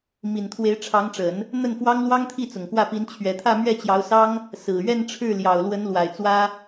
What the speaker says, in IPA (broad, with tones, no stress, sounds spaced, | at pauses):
m i˨˩ n t̪ʰ w e˧˥ ɪ̯ ʈ͡ʂʰ ɑ˧˥ ŋ ʈ͡ʂ ə˨˩˦ n | n̪ ə˥˩ n f w ɑ˥ ŋ l w ɑ˥ ŋ t̪ʰ i˥˩ t͡s ʊ˨˩ ŋ k w ä˥˩ p i˧˥ n t͡ɕʰ ɥ ɛ˨˩ t̪ʰ ä˥˧ m ɥ ɛ˥˩ t͡ɕ j ɑ˧˥ ʊ̯ s ɑ˥ ŋ | s ɹ̩˨˩ ɥ ɛ˥˧ n ʈ͡ʂʰ ɻ̩˥˩ l j ɑ˨˩ ʊ̯ l w ə˧˥ n l w a˨˩ ɪ̯ t͡s w ä˥